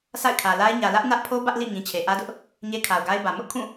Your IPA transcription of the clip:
s a̰˦˨ ɪ̯ kʰ ä˨ l a˦ ɪ̯ ɲ ä˨ l ä˦ ʔ n ä˦ ʔ pʰ o˦ b ä˦ ʔ l ḭ˦˨ ŋ ĩ˨ t͡ɕʰ e˨ ʔ ä˦ d ʊ˦ ʔ | ɲ e˦ kʰ a˨ ʊ̯ ɡ a˦ ɪ̯ b ä˨ m ʊ˦ ʔ kʰ ũ˦˨

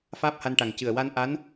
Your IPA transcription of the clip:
f aː˦˥ p̚ h a˧ n ʈ a˨˩ ŋ c ɨ˨˩ ə̯ w a˧ n ʔ a˧˥ n

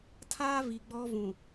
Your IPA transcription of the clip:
tʰ aː˦ v i˨ ɡ͡b ɔ˦ v ũ˨

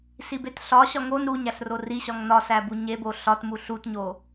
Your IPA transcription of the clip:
s i b e t ɬ ɒ ɕ ɒ ŋ o n ɾ u ɲ æ ɬ r o r i ɕ ɒ ŋ n ɒ s æ b u ɲ e b o ɬ ɒ t m u ɬ u t ɲ o

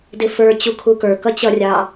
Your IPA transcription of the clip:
d ɪ f ə˞ t͡ɕ u kʰ u k ə˞ k ʌ t͡ɕ ʌ rʲ ɑ

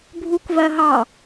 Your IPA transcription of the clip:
bʱ u k v ɜ ɦ ɑ

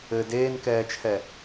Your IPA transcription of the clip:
ɘ d eː n k ɛː t͡ʃʰ ɛ

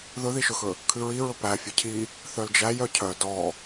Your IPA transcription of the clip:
ð ɵ ð i ʃ ɵ x ɵ | kʰ ʉ ɹ i ɹ ɵ p æ fʲ œ cʰ i | θ œ l d͡ʒ æ j œ cʰ œ d ɔ

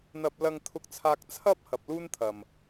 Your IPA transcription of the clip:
n̪ ɐ˥ p̚ l ɐ˥ ŋ t̪ʰ ʊ˥ k̚ t͡sʰ aː˥ k̚ t͡sʰ ɐ˥ p̚ h ɐ˨ p̚ l uː˥ n t̪ʰ ɐ˨ m

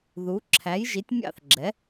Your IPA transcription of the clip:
ð u˩˥ ǁʰ æ˩˥ j ʒ i˩˥ tʲ mʲ ɑ̰˥˨ θ ɡ͡ǁ ɛ˩˥

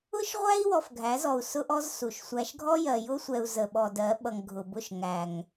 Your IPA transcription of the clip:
ʊ˦ ʃ ʁʷ æ˦ i̯ w ɔ˨ f ɡʱ æ˨˦ z ɔ˨ u̯ s ʊ˦ ʔ ɔ˦ z s u˨ ʃ sʷ æ˨ ʃ ɡʱ ɔ˦ j ɜ˨ j ʊ˦ sʷ ɛ˨ u̯ z ə˨ ɓ ɔ˨ d ɜ˨˦ ɓ ʌ˨ ŋ ɡʱ ʊ˨ b ʊ˦˨ ʃ ŋ æ˨ ŋ

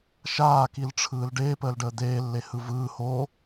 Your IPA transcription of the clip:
ʃ aː k i l ʈ͡ʂʰ ɯː l ɖ eː p əː l ɖ əː d̪ eː lː e h ɯ v ɯː h o

